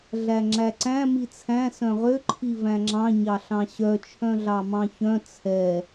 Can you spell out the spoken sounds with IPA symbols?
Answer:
ɮ æ ŋ͡ǁ æ ǀ æ̃ m i t͡sʰ æ̃ s œ̃ ʁ ø ǃʰ i v æ̃ ŋ͡ǁ ɑ̃ ɲ ɑ ɬ ɑ̃ ɕ œ t͡ʃʰ œ̃ ɮ ɑ m ɑ̃ ç œ̃ t͡sʰ ɛ

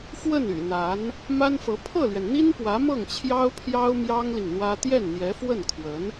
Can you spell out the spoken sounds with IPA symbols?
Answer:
f w ə˥˩ n y̰˨˩ n̪ a˧˥ n | m a˥ n f ɤ˧˥ pʰ ɤ˥˩ l ɥ ɛ˩ n n̪ i˥ n p w ä˧˥ m ɤ˥˩ ŋ t͡ɕʰ j ɑ˥ ʊ̯ pʰ j ɑ˥ ʊ̯ m j ɑ˥ ŋ l i˨ ŋ n̪ w ä˥ t̪ j ɛ˥˩ n n̪ j ɛ˧˥ f w ə˥˩ n kʰ w ə˧˥ n

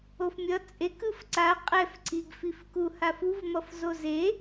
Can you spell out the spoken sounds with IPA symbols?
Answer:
o f mʲ ʌ t͡sʼ e k ɯ f ǀ a qʼ ɛ f ǀ i ɡ f i f k u h a f u v m ʌ f z o z e

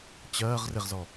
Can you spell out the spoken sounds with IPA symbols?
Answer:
t͡ɕ ɜː ʁ r ɪ ʁ z ɔ

